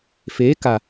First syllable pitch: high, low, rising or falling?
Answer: rising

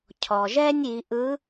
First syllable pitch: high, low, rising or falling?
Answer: low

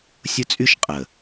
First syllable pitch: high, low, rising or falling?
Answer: high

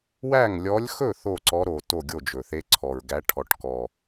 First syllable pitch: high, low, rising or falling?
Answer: falling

